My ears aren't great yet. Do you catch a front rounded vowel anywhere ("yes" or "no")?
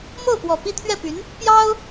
yes